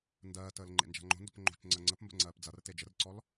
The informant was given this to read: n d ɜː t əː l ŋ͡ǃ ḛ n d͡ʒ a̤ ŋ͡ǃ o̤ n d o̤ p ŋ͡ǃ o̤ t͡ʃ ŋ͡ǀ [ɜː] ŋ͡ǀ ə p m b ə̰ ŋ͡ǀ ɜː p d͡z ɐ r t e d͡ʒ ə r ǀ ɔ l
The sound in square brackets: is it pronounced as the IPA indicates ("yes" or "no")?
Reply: no